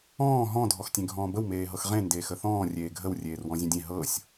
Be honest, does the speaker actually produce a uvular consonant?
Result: yes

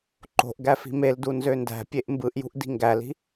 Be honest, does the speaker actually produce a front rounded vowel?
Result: yes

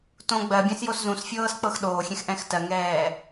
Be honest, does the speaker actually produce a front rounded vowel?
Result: no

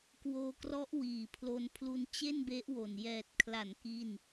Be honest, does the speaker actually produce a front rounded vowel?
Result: no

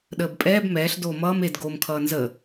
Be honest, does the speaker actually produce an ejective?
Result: yes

